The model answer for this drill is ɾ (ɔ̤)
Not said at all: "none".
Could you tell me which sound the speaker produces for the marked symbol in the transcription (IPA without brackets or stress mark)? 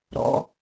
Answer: ɔ̰